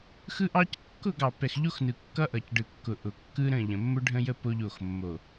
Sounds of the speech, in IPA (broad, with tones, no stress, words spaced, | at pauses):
xɯ˦ʔɑ˦c kːʊ˦˨ɡɑ˨ pɛ˨xʎo˦xnɯ˨ kːʌ˦ʔʌ˨cɖɯ˨ kːʊ˨ʔʊ˨kːɯ˦ ɾə̃˦˨ ʎə̃˨mːʊ˦ɖʱə̃˦jə˦ po˦ʎo˦˨xmːo˨